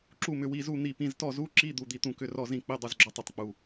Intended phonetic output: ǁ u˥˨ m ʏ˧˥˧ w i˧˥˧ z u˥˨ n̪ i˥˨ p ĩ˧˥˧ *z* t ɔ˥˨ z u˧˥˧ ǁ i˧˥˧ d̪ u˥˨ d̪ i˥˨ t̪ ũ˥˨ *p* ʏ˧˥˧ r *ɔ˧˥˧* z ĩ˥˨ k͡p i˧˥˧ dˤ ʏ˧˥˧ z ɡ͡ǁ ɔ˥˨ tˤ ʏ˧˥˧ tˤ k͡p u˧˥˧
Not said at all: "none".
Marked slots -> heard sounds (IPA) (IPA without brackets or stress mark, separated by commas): z, k, ɔ˥˨